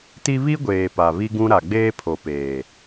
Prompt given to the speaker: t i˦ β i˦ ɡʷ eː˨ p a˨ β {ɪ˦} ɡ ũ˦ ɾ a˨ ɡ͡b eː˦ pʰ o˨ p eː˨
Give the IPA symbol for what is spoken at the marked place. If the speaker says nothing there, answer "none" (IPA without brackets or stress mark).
i˦